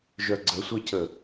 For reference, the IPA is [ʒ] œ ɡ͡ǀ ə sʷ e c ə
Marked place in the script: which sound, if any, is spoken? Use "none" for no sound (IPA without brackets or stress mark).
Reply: ʒ